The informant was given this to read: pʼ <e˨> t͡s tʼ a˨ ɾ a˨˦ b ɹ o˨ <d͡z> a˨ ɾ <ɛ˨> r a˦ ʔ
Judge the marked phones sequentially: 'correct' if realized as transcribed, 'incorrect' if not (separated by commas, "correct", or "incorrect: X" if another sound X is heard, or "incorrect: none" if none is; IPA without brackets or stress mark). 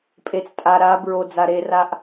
correct, correct, incorrect: e˨